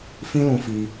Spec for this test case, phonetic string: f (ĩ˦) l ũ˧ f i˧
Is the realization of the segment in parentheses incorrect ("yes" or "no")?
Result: no